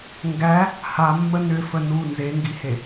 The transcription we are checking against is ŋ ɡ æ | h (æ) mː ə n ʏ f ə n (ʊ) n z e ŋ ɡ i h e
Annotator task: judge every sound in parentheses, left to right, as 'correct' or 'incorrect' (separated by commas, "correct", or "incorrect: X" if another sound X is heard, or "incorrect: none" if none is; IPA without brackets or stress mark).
incorrect: a, incorrect: u